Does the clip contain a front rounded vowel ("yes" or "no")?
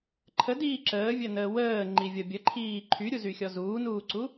yes